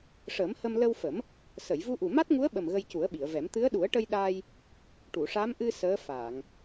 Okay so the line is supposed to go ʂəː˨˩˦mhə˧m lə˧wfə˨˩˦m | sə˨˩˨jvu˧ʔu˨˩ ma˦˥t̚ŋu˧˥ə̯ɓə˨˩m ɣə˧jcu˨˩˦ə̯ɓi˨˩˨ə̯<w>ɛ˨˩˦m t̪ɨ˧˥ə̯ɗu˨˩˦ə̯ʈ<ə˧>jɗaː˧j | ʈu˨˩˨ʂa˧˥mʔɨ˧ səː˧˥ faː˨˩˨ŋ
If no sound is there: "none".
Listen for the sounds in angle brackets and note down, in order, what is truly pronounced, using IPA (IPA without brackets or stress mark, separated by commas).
v, ə˧